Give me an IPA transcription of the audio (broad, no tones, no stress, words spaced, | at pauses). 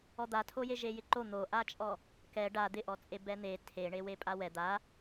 ɔd̪atʰoje ʒejɪǃo n̪oʔat͡ʃʼɔ | kɛ ɖa d̪ɪʔɔt͡sʼe bɛn̪e tʰeɳe wepʼawɛ d̪a